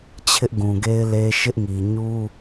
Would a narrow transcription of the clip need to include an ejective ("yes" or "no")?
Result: no